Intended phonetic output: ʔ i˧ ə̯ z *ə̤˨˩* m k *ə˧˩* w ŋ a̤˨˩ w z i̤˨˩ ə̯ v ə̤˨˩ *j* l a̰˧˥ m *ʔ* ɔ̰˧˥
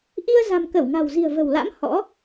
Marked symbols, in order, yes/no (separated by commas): no, yes, no, no